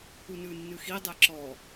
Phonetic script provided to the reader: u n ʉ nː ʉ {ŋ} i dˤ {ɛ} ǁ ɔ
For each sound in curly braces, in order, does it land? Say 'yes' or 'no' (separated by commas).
no, yes